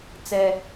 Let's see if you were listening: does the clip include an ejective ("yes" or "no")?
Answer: no